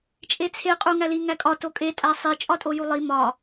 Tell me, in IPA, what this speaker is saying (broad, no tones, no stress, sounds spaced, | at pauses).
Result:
t͡ʃʼ e t͡sʰ e qʼ u ŋ æ l i ŋ æ kʼ ɒ t o kʼ e tʼ æ sˤ i t͡ʃʼ ɒ tʼ o j u lˠ i m ɒ